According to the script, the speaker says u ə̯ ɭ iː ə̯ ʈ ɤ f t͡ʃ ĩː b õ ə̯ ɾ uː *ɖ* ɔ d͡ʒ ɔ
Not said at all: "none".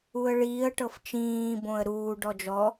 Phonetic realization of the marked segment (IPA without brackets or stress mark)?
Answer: ɖ